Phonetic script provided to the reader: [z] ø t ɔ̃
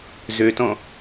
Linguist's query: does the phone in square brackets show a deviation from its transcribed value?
no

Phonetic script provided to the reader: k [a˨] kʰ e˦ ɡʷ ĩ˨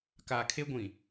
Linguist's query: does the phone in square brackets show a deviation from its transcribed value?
no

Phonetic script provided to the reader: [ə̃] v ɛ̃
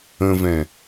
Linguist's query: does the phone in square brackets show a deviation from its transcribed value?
no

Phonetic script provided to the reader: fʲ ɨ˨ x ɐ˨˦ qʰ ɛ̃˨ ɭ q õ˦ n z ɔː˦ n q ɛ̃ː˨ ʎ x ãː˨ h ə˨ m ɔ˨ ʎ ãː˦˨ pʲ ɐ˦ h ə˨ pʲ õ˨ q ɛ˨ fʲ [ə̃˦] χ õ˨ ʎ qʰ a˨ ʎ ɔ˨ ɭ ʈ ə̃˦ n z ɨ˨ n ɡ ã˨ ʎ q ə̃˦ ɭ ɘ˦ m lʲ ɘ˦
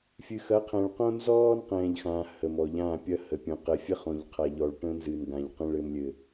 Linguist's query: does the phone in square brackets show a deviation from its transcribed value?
yes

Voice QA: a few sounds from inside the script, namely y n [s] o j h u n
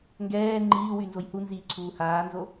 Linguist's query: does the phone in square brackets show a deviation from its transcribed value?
yes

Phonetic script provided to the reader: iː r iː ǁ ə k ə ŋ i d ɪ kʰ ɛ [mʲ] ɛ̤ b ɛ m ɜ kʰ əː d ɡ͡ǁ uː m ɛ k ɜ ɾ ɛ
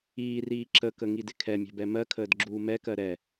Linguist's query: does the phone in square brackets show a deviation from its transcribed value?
no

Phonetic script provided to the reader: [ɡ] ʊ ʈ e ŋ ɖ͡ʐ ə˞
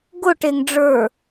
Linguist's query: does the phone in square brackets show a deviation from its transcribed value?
no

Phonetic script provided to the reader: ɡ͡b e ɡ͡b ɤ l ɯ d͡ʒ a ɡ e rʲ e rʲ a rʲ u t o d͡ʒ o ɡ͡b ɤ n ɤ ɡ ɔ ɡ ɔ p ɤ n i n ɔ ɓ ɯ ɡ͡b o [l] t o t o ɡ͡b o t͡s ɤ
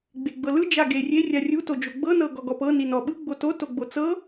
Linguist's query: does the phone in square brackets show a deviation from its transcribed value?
yes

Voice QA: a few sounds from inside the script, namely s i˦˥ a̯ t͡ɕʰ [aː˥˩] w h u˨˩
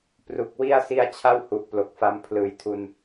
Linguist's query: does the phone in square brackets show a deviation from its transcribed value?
yes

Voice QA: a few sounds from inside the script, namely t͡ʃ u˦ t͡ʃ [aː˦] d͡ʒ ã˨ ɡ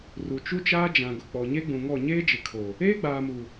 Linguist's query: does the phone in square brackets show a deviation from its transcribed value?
no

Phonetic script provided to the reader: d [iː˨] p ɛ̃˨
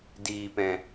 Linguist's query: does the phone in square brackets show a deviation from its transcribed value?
no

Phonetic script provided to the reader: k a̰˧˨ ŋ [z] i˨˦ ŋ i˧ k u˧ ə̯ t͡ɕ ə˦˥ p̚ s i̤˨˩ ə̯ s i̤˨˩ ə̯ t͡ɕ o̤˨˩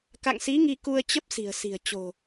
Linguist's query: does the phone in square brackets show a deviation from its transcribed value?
yes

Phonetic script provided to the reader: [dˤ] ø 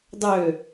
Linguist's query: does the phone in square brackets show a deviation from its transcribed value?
no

